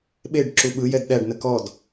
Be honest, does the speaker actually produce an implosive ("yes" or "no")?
yes